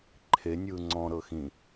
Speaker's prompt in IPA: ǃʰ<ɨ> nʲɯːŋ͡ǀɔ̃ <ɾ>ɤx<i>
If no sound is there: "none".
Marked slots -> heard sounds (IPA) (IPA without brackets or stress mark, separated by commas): e, ɾ, ĩ